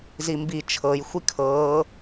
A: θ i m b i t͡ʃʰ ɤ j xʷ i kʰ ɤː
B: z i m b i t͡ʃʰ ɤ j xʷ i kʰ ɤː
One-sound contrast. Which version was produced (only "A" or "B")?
B